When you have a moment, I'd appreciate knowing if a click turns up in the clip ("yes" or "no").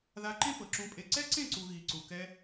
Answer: yes